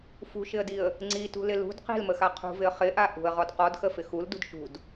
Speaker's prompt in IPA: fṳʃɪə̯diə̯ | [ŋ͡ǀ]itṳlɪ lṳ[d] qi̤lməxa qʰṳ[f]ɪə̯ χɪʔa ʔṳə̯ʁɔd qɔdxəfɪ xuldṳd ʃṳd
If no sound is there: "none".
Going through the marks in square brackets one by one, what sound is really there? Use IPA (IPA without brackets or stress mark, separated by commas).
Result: ŋ͡ǀ, d, v